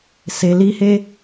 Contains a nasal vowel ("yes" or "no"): no